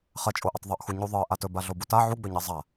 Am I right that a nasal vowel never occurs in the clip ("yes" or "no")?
yes